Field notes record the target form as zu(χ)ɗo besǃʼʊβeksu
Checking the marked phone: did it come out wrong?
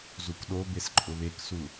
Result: yes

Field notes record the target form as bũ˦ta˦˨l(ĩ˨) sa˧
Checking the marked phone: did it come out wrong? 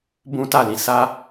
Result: no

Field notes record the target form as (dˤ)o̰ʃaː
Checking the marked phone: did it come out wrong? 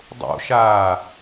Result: no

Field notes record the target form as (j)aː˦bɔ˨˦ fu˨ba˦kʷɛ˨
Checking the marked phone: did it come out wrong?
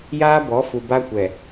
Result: no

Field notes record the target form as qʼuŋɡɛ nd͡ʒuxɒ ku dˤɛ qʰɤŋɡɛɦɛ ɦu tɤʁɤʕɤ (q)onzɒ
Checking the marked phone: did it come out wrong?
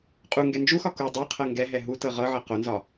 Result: no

